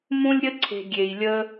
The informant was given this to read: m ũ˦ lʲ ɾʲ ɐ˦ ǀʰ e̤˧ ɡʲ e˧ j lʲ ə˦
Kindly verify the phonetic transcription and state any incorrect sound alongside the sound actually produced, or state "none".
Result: ɐ˦ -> ə˦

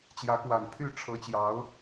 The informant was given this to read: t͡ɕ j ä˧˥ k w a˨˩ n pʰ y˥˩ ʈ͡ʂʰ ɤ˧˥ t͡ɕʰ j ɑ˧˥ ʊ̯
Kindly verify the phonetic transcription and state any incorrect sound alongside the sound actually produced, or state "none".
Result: t͡ɕʰ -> t͡ɕ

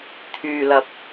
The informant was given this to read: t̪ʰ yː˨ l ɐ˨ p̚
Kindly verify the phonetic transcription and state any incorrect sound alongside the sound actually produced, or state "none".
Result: none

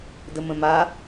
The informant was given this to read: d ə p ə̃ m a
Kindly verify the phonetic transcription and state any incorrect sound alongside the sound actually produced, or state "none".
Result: p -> m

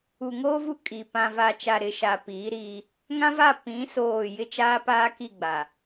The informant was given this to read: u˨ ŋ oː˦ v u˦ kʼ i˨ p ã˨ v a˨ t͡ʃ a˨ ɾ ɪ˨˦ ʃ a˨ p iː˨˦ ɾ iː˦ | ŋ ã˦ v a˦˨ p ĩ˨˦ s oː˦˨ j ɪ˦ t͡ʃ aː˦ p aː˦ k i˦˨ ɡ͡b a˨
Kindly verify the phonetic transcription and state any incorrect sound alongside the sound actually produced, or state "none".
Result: none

